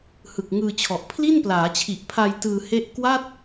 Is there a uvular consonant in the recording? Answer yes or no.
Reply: no